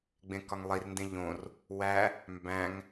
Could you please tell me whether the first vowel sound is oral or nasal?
nasal